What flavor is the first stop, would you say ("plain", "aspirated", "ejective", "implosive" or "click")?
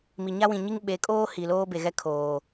implosive